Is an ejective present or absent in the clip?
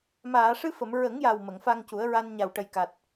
absent